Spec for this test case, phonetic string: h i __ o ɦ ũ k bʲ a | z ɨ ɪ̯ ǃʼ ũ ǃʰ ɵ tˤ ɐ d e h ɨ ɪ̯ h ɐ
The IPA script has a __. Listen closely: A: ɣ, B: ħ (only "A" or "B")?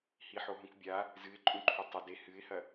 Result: B